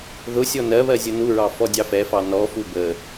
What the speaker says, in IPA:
ð ʊ sʲ ɔ n ɜ β ɜ zʲ ʊ n u ɹ ɑ f ɔ dʲ ɑ f ɛ f ɑ n ɔ f u b ə

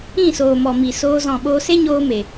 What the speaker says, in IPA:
ĩ˦˨ s oː˨ m ɔ˨ m i˨ s oː˧ z ɔ̃˨ ɓ oː˧ s e˦ ɲ oː˧ m e˨

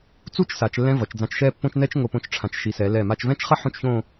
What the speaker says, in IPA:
t͡s u˥˧ t͡ʃ s a˩˧ t͡ʃ lː ɛ̃˧ v ʌ˩˧ t͡ʃ d͡z ã˧ t͡ʃ ʃ ɛ˥˧ pː õ˥ t͡ʃ n ɛ˥ t͡ʃ ŋ o˧˩ p õ˧ t͡ʃ ʈ͡ʂʰ ã˩˧ t͡ʃ ʃ i˩˧ s ɛ˩˧ l ɛ˧˩ m a˧ t͡ʃ v ɛ̃˥ t͡ʃ χ ʌ˥ ħ õ˥˧ t͡ʃ ç õ˥˧

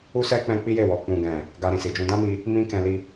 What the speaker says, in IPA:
u˦ s ɛ˦ k͡p ɛ̃˦ k͡p i˦ j e˦˨ w ɔ˨ k͡p ũ˨ ɡ ɛ̃˨ | ɡ a˧ ɾ ĩ˨ s i˨ d͡ʒ ũ˧ d ã˦ m i˧ | m ĩ˦ k ɛ̃˧ l i˧

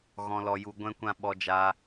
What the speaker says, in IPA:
ɣ ɔ̃˧ l ɔ˧ j u˧ ɡʷ ɛ̃˦ kʷ ã˦ ɓ ɔ˧ d͡ʒ a˧

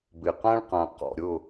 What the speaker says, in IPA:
b ɪ˧˩ q ã˥ ɭ q ã˧ q ɔ̰˧ ɾʲ ʊ˥˧

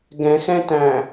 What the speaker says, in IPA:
ɡ ɛ̃ x ɛ̃ t æ̃

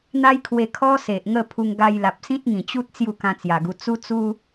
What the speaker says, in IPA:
n̪ a˦ j kʰ w e˧ kʰ ɔ˦ s e˨ ʔ ŋ ə˥˧ pʰ u˧ ŋ ɡ a˧ j l a˨ p̚ s ĩ˦ t̚ ŋ ĩ˨˩ t͡ɕ u˦ t̚ t͡s j u˥˧ k ã˧ t͡s j a˨˩ ɡ u˧ t͡s u˦ t͡s u˦

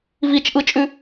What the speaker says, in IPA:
v i t͡ʃ ʔ ɯ t͡ʃʼ ʉ

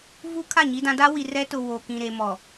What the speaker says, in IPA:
v u˦ kʰ a˦˨ ɲ i˦ d ã˦ d a˦ w i˨ r ɛ˦ t ʊ˨ w o˨ k ĩ˨ ɾ e˨ m ɔ˨

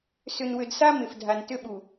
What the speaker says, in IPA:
s ʏ˦ n w ʏ˦ d s a˦ m ɪ˨ f dʱ a˨ n t ʏ˦ ɓ u˨

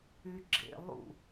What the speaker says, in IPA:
y ɡ͡ǁ ḛ lˠ ṵ

